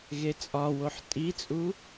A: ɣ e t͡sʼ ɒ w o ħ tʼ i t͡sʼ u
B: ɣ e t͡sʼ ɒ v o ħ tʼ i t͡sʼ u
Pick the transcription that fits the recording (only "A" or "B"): A